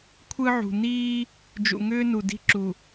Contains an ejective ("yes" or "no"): no